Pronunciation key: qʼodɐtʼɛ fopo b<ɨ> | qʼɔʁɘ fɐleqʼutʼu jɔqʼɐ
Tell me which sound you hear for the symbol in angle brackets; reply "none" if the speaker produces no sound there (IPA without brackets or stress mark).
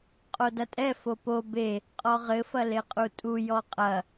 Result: e